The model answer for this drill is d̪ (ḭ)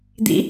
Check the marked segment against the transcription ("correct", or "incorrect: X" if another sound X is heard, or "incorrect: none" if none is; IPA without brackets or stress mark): correct